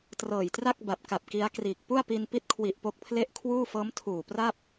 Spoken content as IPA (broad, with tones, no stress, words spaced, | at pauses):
trɤː˨˩jtra˥˩k̚ba˨˩p̚ ka˨˩p̚ki˦˥a̯kriː˨˩k̚ pu˥˩a̯pi˧n pi˦˥t̚kʰwi˨˩ʔ po˦˥k̚pʰle˥˩ʔ kʰwuː˥˩ fɤː˦˥m tʰuː˨˩pra˥˩p̚